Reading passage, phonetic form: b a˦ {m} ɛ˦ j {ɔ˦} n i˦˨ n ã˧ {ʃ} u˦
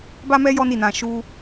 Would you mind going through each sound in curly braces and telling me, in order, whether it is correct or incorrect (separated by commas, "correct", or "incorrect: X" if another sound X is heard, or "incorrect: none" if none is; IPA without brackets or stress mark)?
correct, correct, correct